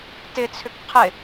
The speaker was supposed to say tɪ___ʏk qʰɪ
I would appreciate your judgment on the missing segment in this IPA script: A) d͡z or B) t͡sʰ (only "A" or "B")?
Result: B